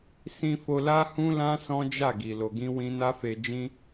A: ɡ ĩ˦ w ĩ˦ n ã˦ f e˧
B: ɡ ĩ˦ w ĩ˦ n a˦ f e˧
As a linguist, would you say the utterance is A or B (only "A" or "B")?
B